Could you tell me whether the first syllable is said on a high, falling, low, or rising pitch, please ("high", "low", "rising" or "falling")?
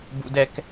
high